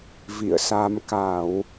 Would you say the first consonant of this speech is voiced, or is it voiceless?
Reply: voiced